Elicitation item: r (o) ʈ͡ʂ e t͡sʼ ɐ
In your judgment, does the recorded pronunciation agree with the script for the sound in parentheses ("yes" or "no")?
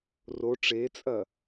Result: yes